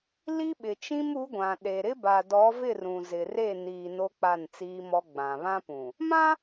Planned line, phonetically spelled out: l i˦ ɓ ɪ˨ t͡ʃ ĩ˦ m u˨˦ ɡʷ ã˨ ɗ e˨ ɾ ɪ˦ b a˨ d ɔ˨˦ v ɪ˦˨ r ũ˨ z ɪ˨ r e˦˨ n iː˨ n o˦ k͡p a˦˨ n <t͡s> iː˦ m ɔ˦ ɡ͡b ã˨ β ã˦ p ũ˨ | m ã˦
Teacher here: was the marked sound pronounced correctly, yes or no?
yes